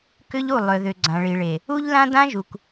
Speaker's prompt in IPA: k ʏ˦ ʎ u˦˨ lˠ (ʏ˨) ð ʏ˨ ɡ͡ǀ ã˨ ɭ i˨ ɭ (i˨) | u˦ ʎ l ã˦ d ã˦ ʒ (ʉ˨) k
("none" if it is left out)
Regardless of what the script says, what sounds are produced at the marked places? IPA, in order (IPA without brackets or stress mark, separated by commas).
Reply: ʏ˨, e˨, u˨